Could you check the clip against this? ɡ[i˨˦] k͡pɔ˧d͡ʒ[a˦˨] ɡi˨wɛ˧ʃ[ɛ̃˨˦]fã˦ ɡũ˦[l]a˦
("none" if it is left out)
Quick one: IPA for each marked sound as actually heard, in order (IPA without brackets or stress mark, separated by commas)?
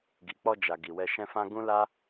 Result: i˨, a˨, ɛ̃˦, l